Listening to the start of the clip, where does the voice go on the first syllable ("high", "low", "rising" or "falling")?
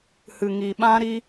low